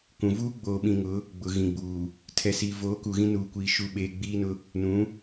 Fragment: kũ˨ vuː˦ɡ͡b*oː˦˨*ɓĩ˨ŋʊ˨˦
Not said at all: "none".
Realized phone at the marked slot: oː˨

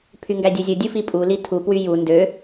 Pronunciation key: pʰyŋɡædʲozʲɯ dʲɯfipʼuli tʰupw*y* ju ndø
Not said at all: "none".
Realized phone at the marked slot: y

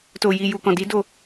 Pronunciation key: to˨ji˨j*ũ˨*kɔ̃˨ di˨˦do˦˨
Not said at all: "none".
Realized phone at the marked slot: u˨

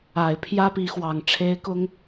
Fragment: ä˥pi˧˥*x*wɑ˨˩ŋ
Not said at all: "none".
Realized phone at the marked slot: x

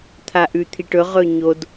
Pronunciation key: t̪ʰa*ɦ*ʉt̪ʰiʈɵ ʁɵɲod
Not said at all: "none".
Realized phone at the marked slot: ʔ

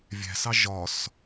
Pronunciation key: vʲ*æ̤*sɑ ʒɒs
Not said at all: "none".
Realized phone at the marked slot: æ̤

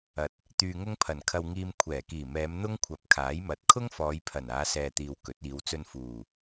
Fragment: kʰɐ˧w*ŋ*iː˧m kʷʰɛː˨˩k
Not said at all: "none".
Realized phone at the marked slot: ŋ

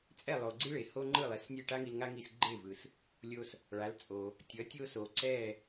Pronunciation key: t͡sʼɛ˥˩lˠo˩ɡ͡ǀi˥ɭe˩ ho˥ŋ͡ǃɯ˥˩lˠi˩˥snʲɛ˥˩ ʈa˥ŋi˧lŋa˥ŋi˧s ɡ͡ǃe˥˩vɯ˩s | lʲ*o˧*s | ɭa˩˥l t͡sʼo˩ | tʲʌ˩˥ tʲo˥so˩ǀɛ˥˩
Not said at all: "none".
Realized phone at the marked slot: o˧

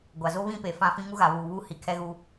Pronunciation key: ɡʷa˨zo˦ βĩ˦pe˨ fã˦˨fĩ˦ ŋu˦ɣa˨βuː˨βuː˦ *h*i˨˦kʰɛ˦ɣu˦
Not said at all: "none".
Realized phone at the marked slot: h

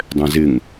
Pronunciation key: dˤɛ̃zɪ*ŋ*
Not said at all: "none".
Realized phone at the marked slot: ŋ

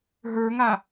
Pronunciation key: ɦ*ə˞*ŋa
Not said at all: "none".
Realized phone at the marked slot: ə˞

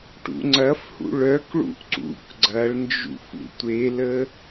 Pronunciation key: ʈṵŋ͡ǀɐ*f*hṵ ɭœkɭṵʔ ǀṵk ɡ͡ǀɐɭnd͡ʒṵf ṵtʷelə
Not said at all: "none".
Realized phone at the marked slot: f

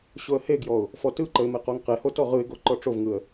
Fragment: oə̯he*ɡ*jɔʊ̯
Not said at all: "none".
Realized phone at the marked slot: ɡ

